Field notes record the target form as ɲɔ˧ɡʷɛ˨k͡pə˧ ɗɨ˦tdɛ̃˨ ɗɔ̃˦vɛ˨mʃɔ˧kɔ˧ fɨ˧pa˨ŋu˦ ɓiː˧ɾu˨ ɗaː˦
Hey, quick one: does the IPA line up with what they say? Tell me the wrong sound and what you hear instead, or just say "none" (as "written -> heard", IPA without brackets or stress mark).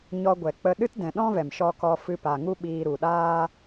none